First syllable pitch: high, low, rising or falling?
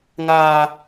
high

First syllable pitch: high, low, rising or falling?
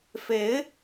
rising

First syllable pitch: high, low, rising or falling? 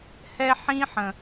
high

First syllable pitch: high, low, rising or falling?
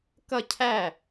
falling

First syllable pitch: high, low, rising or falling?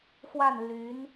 falling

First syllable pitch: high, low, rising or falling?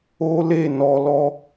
high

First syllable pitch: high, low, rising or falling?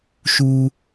high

